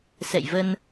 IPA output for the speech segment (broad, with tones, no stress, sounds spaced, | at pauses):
s ɛ̰˧˨ j v ə˧ n